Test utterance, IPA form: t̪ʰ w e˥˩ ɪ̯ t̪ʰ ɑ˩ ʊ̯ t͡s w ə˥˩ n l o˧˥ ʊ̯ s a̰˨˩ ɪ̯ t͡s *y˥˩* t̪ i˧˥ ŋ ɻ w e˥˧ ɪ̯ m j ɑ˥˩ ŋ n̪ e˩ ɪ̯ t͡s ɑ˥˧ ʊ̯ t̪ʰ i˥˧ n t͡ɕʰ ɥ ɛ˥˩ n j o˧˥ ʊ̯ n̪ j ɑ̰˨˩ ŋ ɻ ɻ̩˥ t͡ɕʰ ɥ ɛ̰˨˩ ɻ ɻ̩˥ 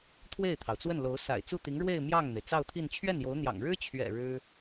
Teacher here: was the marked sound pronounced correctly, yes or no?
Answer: no